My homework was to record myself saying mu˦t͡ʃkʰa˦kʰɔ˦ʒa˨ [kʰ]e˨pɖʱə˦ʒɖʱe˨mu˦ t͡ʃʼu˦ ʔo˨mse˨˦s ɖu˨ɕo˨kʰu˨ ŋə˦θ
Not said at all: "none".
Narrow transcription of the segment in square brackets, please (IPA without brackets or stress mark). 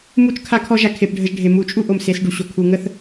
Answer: kʰ